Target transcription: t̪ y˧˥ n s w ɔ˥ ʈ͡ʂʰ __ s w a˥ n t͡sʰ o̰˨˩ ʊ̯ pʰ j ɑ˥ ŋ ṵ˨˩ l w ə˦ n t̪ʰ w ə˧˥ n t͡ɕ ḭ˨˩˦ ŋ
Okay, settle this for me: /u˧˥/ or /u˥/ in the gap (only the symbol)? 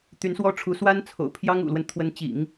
u˧˥